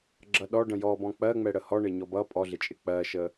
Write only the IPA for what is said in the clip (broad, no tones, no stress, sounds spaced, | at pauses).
ɡ͡ǁ ʌ ɗ ɔ ɖ ə̃ j ɔ b ɔ̃ k͡p ɜ ŋ͡m ɛ ɽ ə h ɔ ɳ ɪ ɲ ɔ b ʌ pʼ ɔ ɮ ɪ t͡ʃʼ ɪ k͡p ɜ ʃ ə